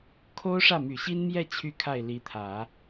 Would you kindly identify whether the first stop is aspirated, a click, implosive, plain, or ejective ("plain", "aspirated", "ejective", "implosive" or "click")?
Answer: aspirated